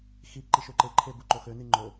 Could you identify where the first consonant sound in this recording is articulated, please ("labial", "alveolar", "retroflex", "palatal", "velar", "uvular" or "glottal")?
velar